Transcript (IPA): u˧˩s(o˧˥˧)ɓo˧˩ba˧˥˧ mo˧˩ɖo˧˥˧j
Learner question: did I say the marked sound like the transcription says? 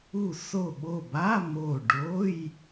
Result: no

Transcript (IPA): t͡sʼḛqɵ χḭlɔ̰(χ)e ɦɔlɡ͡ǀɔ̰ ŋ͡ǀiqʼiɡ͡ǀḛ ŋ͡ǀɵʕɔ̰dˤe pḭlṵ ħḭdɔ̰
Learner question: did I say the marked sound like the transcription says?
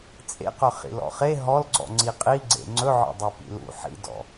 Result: yes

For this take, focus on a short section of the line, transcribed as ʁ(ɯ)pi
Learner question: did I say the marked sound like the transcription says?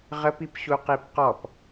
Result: no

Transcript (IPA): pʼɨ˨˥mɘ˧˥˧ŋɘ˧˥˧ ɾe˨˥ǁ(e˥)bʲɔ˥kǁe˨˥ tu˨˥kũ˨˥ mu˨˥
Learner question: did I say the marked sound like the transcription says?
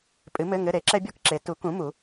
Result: no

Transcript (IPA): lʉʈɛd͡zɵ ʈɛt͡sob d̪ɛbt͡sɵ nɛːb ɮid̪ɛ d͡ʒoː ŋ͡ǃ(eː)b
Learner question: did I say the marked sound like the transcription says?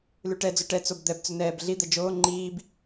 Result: no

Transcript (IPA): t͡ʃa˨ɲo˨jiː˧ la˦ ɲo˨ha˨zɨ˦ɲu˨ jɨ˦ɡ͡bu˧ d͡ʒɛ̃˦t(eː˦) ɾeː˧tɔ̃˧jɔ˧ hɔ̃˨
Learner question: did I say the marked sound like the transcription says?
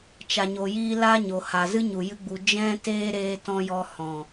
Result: yes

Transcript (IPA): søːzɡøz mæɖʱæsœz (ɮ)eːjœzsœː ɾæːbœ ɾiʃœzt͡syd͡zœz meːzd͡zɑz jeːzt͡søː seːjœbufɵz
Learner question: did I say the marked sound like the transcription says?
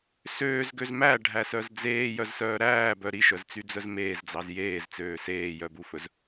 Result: no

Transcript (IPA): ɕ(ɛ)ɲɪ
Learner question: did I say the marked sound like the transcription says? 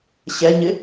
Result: yes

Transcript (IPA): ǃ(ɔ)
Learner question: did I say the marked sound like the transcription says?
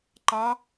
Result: no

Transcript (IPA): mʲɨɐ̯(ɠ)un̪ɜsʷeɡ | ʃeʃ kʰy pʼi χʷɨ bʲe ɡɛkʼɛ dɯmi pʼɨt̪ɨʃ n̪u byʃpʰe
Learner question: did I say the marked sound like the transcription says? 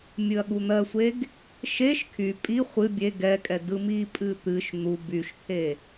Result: yes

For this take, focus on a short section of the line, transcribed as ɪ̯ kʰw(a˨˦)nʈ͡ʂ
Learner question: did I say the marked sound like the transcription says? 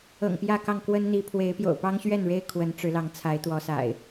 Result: no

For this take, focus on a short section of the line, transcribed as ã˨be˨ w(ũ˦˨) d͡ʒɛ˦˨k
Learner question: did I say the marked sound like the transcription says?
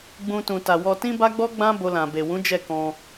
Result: no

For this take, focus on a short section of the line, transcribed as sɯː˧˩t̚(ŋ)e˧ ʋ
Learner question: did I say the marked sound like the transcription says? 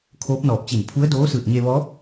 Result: no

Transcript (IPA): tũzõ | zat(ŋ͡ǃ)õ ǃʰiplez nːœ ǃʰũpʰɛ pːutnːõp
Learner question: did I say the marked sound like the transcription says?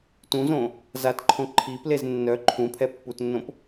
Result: no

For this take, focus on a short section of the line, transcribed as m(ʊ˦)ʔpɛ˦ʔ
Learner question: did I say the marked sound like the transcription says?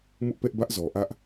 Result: yes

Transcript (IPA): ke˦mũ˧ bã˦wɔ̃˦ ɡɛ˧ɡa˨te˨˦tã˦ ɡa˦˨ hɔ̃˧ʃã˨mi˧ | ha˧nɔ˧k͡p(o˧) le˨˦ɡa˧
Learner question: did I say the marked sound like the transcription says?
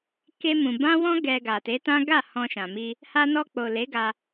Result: no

